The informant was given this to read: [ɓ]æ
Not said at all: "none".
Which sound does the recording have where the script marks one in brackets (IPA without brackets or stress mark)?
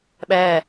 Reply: ɓ